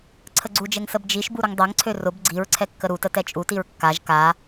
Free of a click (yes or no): no